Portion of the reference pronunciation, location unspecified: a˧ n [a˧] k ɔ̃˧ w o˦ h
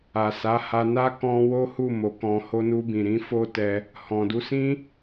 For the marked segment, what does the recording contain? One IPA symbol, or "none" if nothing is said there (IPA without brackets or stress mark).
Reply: a˦